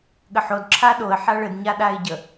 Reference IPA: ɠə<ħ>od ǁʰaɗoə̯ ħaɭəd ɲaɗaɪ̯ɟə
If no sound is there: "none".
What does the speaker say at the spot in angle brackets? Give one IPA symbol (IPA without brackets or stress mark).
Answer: ħ